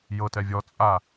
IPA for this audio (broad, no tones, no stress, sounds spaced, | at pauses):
j ɤ t ɛ vʲ ɔ t͡sʼ a